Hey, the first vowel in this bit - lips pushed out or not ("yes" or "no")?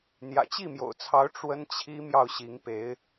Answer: no